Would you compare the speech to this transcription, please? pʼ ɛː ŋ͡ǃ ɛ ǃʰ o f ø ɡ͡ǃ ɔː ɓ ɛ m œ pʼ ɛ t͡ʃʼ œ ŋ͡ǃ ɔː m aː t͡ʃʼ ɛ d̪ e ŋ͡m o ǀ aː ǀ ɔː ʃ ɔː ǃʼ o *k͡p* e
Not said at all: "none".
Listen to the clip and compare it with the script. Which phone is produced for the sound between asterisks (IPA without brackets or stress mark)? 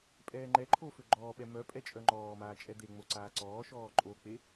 k͡p